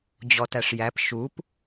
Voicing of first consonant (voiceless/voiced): voiced